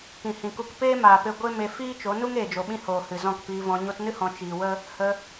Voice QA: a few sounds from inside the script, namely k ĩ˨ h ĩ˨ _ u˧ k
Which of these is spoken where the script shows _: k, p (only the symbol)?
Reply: k